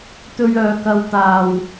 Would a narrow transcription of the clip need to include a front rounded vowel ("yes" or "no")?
yes